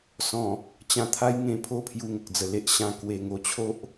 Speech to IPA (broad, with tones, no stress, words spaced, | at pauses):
sɔ̃˨˩ | t͡ɕã˧t̪ʰa˦jŋẽ˧ pʰo˦ pʰju˧ŋə˨k̚d͡zə˨˩le˦ʔ ɕã˧ kwe˧ŋo˧t͡ɕʰo˦ʔ